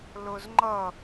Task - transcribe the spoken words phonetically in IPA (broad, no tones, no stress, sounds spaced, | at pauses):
l ʊ z ŋ͡ǃ ʌ